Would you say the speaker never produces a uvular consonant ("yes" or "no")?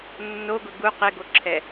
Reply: no